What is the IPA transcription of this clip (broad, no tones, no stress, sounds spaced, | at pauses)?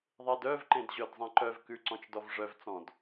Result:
ðˤ e d œ v ǃ ẽ d ʑ œ d zˤ ẽ ǃ œ v k ʉ ǀ ɔ̃ t͡ʃ d ɔ v ʐ œ v t͡s ɔ̃ d